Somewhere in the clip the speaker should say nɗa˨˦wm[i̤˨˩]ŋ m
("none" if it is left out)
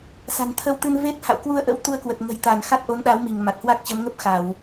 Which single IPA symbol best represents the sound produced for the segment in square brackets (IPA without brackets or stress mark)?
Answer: i˧˩